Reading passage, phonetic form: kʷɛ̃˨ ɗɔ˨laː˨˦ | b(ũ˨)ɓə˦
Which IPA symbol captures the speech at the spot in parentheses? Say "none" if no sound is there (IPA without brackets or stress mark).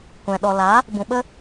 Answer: ũ˨